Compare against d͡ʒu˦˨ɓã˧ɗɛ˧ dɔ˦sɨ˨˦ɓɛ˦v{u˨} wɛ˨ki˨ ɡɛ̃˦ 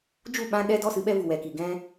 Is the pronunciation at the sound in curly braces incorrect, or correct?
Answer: correct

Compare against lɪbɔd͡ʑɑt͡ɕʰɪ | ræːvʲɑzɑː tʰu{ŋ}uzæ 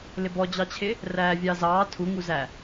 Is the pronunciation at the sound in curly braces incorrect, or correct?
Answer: correct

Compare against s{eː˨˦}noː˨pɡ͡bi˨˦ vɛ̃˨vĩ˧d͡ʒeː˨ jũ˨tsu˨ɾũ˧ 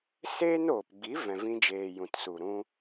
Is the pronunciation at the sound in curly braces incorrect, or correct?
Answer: incorrect: eː˦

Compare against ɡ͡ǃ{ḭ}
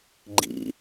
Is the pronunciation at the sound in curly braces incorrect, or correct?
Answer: correct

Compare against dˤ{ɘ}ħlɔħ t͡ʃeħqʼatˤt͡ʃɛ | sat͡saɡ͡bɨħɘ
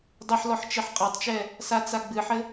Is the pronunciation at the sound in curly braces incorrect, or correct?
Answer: correct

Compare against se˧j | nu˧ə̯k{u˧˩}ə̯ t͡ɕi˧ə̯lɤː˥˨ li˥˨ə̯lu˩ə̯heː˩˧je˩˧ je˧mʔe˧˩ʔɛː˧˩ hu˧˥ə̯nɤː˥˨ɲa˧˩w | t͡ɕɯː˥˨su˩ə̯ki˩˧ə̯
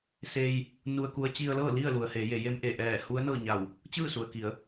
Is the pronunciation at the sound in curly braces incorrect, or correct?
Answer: incorrect: u˧˥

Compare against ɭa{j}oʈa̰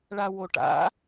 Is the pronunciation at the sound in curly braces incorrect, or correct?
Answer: incorrect: w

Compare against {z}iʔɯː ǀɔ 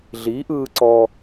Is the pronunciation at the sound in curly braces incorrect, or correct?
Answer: incorrect: ɮ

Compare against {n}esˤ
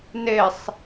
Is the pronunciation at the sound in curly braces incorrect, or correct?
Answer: correct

